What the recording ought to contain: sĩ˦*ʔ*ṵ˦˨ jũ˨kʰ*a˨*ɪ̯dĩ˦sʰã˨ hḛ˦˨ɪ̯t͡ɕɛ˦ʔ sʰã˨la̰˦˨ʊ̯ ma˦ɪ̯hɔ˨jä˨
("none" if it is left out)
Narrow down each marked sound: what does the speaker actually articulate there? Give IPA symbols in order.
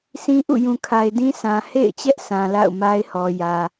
ʔ, a˨

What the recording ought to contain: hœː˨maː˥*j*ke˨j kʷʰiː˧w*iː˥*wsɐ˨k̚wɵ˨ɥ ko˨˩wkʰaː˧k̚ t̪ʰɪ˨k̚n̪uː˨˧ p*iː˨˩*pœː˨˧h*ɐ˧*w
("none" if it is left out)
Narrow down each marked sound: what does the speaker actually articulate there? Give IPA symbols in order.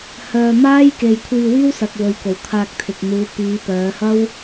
j, iː˥, iː˨˧, ɐ˥

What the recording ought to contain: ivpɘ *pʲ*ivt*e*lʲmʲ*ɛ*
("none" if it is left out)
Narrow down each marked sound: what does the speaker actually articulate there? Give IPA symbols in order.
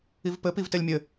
p, e, ɘ

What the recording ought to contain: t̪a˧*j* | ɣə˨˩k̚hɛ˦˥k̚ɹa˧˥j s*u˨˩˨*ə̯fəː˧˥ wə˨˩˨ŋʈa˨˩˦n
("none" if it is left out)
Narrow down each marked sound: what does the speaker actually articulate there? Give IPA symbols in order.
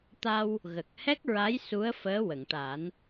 w, u˧˥

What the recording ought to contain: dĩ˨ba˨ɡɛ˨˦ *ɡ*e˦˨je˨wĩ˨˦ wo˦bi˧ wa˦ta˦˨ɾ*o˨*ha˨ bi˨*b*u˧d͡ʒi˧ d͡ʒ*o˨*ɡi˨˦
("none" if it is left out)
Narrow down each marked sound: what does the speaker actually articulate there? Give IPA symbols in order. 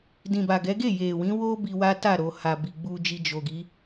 ɡ, o˨, ɡ͡b, o˨

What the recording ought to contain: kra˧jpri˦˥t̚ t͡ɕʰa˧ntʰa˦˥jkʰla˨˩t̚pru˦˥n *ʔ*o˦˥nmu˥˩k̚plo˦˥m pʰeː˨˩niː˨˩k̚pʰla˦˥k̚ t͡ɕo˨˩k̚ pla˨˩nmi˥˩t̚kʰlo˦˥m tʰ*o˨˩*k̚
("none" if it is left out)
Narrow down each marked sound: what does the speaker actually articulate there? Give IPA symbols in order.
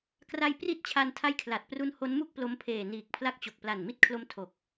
h, o˨˩

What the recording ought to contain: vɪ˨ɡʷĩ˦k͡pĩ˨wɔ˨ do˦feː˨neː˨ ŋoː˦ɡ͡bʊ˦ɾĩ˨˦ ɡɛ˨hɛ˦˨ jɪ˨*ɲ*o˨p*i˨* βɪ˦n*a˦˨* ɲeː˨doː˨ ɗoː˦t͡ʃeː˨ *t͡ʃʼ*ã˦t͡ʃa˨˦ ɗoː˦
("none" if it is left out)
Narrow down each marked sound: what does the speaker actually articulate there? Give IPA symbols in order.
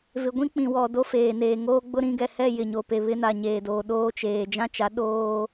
ɲ, e˨, a˨, d͡ʒ

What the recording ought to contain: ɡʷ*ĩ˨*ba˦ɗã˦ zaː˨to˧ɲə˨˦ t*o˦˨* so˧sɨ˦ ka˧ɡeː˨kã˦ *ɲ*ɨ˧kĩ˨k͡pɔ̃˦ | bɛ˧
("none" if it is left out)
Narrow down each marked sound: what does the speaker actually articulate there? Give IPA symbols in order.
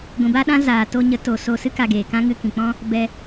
ĩ˨, o˨, ŋ

